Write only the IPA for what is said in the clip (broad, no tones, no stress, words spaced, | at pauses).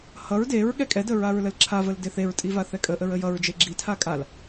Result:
hʌɹ deɹ ɠɛkʼɛdə ɹaɹləlǁʰavəl deθeɹtʼi vaθɛkʼəʔəɹ əjʌɹd͡ʒe ɡ͡ǁitʰa kʼal